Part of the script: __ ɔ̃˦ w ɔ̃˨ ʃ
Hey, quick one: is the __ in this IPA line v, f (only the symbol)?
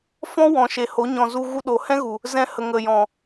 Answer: f